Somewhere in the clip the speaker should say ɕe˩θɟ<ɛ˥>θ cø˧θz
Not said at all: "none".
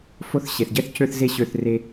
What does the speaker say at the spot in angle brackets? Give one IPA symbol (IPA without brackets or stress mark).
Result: ɛ˥